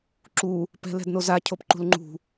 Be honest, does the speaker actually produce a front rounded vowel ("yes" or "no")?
no